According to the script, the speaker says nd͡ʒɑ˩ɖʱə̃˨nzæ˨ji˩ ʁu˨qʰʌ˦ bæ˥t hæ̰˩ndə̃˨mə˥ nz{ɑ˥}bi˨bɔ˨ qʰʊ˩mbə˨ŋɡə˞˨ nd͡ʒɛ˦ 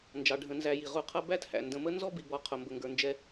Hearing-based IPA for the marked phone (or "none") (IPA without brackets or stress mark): ɔ˥